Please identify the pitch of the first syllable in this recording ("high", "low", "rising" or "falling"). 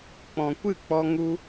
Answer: low